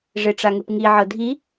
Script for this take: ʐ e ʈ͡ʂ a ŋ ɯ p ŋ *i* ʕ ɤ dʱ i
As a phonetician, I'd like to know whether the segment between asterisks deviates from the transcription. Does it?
no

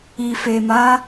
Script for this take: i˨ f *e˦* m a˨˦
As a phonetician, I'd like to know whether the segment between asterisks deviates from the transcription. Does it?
yes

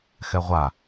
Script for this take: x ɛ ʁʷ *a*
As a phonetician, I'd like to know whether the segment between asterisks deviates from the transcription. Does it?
no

